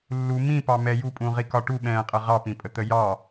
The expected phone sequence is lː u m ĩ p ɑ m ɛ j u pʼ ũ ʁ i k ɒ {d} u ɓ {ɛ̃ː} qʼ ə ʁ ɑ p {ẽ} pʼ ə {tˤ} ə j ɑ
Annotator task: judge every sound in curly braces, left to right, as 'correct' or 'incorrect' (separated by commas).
incorrect, correct, incorrect, incorrect